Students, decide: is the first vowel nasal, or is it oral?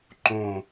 nasal